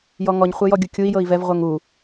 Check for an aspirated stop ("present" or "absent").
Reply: absent